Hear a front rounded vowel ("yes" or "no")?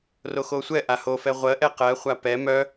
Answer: yes